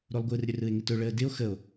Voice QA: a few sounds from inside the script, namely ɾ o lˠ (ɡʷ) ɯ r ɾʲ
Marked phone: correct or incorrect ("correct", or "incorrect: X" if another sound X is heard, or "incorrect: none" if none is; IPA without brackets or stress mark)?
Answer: correct